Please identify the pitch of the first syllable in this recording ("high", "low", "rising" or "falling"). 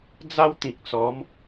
high